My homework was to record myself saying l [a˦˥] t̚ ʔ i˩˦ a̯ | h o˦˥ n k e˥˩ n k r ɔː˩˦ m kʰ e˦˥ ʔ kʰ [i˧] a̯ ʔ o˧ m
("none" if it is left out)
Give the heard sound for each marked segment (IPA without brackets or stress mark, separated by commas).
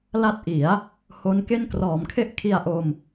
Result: a˦˥, i˧